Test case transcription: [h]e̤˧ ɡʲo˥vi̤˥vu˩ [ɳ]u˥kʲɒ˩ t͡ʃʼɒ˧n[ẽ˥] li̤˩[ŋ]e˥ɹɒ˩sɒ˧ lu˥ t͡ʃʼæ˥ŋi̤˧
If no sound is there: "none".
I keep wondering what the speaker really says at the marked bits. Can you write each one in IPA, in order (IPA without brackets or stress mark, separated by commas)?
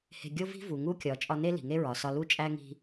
h, ŋ, e˥, ŋ